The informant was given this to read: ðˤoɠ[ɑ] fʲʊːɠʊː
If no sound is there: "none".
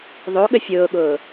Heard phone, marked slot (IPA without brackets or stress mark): ə